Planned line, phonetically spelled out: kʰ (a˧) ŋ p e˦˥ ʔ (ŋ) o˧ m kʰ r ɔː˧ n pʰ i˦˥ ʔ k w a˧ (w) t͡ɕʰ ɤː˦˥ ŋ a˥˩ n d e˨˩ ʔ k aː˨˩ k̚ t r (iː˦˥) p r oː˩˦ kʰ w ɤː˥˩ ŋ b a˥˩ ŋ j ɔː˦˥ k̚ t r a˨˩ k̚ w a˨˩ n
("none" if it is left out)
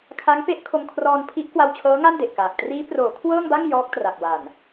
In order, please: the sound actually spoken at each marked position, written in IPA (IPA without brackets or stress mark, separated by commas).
a˦˥, kʰ, w, iː˦˥